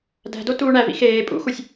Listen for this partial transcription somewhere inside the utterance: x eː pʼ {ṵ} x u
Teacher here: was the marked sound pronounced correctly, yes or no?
yes